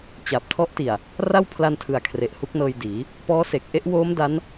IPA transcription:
t͡ɕ a˨˩ p̚ tʰ ɔ˦˥ ʔ t i˨˩ a̯ | r a˥˩ w pʰ l a˧ n tʰ ɯ˨˩ a̯ kʰ r e˨˩ ʔ h u˦˥ k̚ n ɤː˧ j d iː˩˦ | p ɔː˦˥ s e˨˩ k̚ ʔ e˥˩ ʔ w oː˦˥ m d a˦˥ n

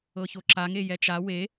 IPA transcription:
ɤ ç o ǁ a ŋ e j ɛ t͡ʃ a w e

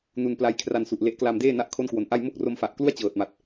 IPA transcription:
n u˧ n p l a˦˥ j kʰ r a˧ n s u˨˩ ʔ l e˦˥ ʔ k l a˧ m d eː˥˩ n a˥˩ ʔ kʰ o˥˩ n k w o˨˩ n ʔ a˥˩ j m o˥˩ k̚ r o˧ m f a˨˩ ʔ k l u˥˩ a̯ t͡ɕ ɤː˨˩ t̚ m a˨˩ t̚

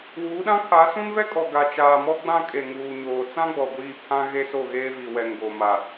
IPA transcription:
w uː˨˦ ɗ ã˦ kʰ a˨˦ s ũ˦ n v ɛ˦ kʼ ɔ˨ ɡ a˨ t͡ʃ aː˨ m ɔ˦ ɡ͡b ã˦ kʼ e˨ ŋ uː˨ ɲ oː˨ t͡s ã˦ ɡ͡b ɔ˨ ɡʷ iː˦˨ pʰ ã˦ ɣ e˦ s o˦˨ ɣ eː˦ v i˨ w ɛ˨ ŋ ɡ o˨ m a˨

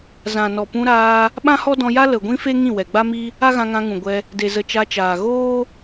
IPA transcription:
z ã˨ n ɔ˨ p ũ˧ ɾ aː˧ | ɓ ã˦ h ɔ˦ d ɔ̃˧ j a˦ l ə˨ ɡʷ ĩ˦ f e˦ ŋ ĩ˦˨ w ɛ˨ ɡ͡b a˦ m i˦ | a˦ ɣ ã˧ ŋ ã˧ ŋ ũ˨ ɡʷ ɛ˧ | d e˨ z ə˨ t͡ʃ a˧ t͡ʃ aː˨ ɣ oː˦

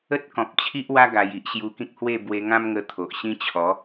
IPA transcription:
ə˦ t̚ k ɔ̃˨ p̚ t͡ɕʰ i˦ ʔ w a˦ ɡ a˧ j i˦ ʔ ɕ j u˧ k ĩ˦ k̚ h w e˥˧ b w e˧ ŋ ã˦ m ŋ ə˧ t̪ʰ o˨ ʔ ɕ ĩ˦ t͡ɕʰ ɔ˨˦

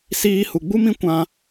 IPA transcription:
s iː˧ h u˨ ɡ͡b u˦ m ĩ˦ kʷ ã˦

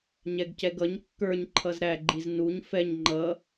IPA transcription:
ɲ ɛ ɡ c ɛ ɡ ʌ ɲ kː ə˞ ɲ ǃʰ ʌ z ɾ æ ɡ͡ǃ i z n u ɲ f ɛ ɲ ŋ͡ǃ ʌ

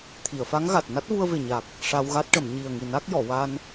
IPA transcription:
t̪ʰ i˨˩˨ ə̯ f a˧˥ ŋ ɣ a˨˩ t̚ n a˦˥ t̚ v u˧ ə̯ v e˨˩ ɲ a˨˩ k̚ | ʂ a˧ w ɣ a˦˥ t̚ ʈ ə˨˩˨ m ɲ i˨˩ ə̯ ŋ i˨˩ n a˦˥ k̚ j ɔ˨˩˨ w a˧ n

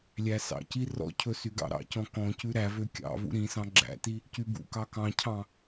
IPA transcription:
lʲ æ s ɑ̰ c i r ɔ̰ cʰ ɵ s y ɡ ɑ̰ ɾ ɑ̰ c ɔ̃ k ɔ̃ c ʉ ɾ æ v ø kʲ ɑ̰ v ṵ ɾ ĩ s ɑ̃ ɡ͡ǁ æ̰ t i | c y b ṵ k ɑ k ɑ̃ cʰ ɑ̃

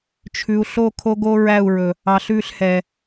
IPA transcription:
t͡ʃʰ ʉ˨ u̯ ɬ o˦˨ kʰ o˦ ɡ o˦ ɹ æ˦˨ u̯ ɹ ɵ˨ | ɑ˨ ɬ ʉ˦˨ ɬ h ɛ˨

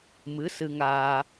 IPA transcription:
m ɨ˧˥ s ɨ˧ ŋ aː˧

